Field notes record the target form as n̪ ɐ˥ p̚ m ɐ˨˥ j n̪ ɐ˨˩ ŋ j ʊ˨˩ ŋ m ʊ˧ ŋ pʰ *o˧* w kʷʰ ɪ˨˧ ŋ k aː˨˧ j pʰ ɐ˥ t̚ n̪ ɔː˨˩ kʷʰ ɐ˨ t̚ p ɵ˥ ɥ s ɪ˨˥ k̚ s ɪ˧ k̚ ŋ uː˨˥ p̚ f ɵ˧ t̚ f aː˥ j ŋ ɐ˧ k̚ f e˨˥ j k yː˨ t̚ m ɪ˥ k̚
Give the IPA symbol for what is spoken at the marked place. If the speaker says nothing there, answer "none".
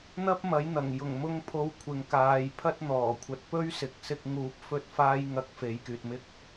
o˧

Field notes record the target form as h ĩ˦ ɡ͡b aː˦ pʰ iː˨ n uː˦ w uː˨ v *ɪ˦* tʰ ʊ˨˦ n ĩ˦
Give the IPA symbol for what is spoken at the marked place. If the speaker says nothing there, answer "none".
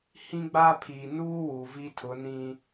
i˦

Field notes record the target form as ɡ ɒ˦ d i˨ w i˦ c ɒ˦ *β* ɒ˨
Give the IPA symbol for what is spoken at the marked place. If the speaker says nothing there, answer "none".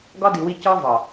v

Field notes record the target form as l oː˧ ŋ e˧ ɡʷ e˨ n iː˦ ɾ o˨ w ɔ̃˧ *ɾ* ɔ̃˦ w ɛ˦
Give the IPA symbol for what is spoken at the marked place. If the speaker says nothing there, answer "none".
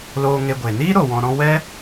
ɾ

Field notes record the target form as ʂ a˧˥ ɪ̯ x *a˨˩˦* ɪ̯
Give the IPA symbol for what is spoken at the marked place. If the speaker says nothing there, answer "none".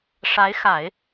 a˨˩˦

